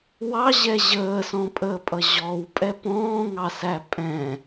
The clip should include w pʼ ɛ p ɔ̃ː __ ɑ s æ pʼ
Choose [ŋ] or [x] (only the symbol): ŋ